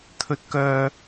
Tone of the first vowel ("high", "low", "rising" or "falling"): rising